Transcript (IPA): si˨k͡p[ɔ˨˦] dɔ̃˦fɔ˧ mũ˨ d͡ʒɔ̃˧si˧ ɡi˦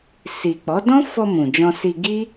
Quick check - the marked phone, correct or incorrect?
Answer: correct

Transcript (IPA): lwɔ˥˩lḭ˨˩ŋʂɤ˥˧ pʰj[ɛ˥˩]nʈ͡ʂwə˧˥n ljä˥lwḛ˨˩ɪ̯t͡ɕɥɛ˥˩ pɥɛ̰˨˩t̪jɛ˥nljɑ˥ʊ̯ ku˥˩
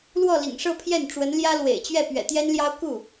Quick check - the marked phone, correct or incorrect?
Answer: correct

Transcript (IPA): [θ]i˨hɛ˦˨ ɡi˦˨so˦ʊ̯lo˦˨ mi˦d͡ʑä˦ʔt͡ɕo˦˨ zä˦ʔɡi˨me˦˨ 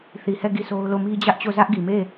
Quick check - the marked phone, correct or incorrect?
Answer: correct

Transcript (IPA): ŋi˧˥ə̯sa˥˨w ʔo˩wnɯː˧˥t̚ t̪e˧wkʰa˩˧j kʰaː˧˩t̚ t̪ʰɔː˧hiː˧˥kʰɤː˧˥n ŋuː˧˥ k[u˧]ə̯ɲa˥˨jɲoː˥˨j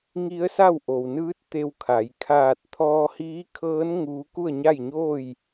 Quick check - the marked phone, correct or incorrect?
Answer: incorrect: u˥˨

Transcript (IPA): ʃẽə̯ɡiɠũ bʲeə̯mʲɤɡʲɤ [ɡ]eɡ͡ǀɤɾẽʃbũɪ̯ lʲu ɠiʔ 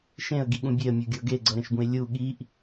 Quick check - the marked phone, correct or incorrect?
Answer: correct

